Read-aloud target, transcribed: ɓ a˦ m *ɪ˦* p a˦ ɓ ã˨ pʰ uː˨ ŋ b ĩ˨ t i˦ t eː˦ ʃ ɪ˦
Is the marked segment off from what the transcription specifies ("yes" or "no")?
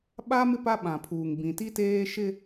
no